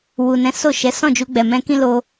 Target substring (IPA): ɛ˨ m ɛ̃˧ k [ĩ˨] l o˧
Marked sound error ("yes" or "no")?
yes